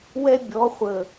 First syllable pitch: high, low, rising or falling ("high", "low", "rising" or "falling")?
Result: high